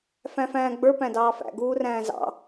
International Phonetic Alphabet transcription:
fæ̃fæ̃ːɡ͡bə˞ pæ̃dɑːfæ̰ ɡuːræ̃ːzɑ̰

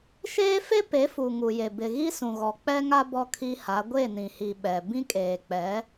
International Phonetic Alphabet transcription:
ʃeː˦fe˦ pe˨˦fu˨ŋu˨je˨ bɪ˨ ɣi˦sũ˨ɣɔ˨ k͡pɛ˦ŋa˦ bɔ˦kʰi˦ha˨˦ ɡʷe˦˨nĩ˨hi˨ ɓɛ˨ bĩ˦kʼeː˨k͡pɛ˨˦

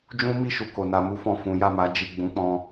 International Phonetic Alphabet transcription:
d͡ʒũ˦mi˦˨ʃu˨ ko˨na˧mu˦ fɔ̃˦˨fũ˨˦ ja˦˨ma˨˦ d͡ʒi˦˨ ɡ͡bũ˨˦k͡pɔ̃˧

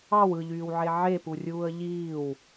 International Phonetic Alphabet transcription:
ɑw ɯʎyːwʕe ʕepurʲuːə̯ ʎiːw

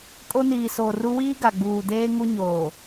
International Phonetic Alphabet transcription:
kʼo˦niː˨soː˨ru˦ wiː˦ɡa˨ɡ͡buː˨deː˦ ŋu˦ɲoː˨

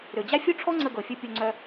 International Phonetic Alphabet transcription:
ɾø˩d͡ʑa˥ fʲo˥ʈ͡ʂʰɔ˥ ŋ͡ǀə˧ɡɤ˩fʲu˧ pʲo˧ŋ͡ǀœ˧

